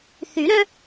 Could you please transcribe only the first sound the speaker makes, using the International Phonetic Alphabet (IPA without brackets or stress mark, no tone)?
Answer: θ